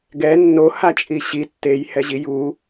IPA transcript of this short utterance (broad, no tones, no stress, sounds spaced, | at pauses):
ɡ ɛ nː o h a t͡ʃʼ i ɕ i tː e j h ɛ ʑ i j u